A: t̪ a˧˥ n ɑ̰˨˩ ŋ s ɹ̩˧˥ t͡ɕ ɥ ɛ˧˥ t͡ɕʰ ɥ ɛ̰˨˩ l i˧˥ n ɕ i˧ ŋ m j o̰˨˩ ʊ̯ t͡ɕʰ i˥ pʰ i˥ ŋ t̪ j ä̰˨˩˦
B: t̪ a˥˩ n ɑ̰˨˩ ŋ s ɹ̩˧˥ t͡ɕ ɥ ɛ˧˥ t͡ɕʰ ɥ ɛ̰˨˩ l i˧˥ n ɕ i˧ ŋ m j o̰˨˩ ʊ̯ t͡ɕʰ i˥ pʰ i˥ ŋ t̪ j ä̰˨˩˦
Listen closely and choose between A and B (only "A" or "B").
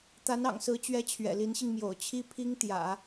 A